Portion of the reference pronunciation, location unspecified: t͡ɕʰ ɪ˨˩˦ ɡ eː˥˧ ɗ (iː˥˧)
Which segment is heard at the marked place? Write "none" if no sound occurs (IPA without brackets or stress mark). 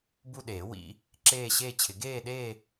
eː˥˧